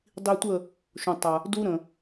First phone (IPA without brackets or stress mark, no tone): dˤ